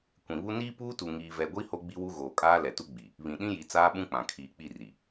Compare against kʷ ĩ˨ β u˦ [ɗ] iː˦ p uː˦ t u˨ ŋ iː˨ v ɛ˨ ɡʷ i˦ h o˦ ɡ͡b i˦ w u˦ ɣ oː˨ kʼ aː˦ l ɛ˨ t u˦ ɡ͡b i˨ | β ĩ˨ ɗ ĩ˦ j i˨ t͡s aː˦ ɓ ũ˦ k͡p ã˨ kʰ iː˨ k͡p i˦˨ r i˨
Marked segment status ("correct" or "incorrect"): incorrect